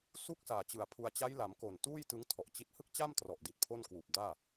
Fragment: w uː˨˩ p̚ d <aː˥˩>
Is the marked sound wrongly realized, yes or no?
no